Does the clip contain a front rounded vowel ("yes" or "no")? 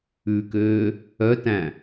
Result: yes